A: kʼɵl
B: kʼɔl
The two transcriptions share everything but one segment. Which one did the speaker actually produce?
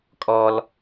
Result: B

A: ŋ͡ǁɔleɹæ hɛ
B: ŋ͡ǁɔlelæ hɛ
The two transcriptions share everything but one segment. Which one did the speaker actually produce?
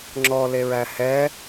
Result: A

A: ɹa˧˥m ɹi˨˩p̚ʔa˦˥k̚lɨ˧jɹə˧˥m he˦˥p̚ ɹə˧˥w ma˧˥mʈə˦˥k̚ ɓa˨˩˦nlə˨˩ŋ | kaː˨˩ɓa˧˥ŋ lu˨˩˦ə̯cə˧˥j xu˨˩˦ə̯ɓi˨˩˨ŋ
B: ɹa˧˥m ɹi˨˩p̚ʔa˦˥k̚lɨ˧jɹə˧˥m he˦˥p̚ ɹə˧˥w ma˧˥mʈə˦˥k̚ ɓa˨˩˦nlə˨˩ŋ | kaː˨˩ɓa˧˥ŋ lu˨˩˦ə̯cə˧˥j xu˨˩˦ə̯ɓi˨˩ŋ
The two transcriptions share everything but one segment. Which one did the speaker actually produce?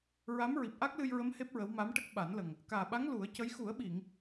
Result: A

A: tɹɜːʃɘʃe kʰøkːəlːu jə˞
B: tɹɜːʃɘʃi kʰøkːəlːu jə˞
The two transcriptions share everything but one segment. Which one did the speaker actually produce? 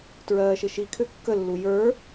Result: B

